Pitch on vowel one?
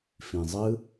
low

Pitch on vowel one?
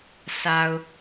low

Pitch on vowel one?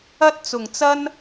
high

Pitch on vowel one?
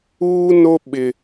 high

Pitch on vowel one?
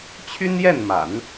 high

